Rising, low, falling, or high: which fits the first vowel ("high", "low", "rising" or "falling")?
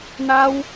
high